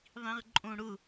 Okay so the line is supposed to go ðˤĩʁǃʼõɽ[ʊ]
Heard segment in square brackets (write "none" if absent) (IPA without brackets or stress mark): ʊ